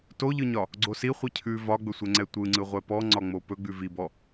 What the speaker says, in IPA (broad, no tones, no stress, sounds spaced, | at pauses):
t o ʎ ɯ ɲ ɒ | ɡ͡ǀ o s i χʷ i cʰ ʉ v ɒ ɡ͡b ɵ sʷ ɛ ŋ͡ǀ ɛ tʷ ɯ ŋ͡ǀ ɯ ʁʷ ɛ p ɔ ŋ͡ǀ ɒ ŋ͡m o p ɵ ɡ͡b ʉ v i b ɔ